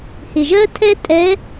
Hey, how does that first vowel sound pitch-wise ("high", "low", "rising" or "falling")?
low